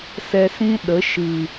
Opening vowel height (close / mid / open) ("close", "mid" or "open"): mid